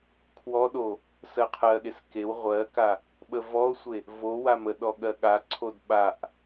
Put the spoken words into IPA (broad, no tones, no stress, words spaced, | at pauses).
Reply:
kʰwɔɗo | sɜqʰɜɠes kew ʁʷɜka | ɓəvɔo̯sʷe | vo waməɗɔ ɠɜɠaǀʰod ɓaʔ